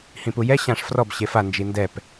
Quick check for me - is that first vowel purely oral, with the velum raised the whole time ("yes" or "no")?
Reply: no